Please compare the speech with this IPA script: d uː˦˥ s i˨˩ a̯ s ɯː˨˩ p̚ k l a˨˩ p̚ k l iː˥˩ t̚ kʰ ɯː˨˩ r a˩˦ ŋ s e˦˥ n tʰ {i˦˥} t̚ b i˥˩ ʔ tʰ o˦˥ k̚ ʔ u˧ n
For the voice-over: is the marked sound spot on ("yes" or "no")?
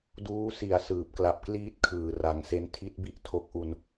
yes